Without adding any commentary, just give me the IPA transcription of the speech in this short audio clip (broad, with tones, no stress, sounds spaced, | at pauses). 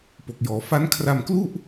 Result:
p o˨˩ k̚ j ɔː˩˦ f a˦˥ n kʰ r a˧ m k l u˥˩ ʔ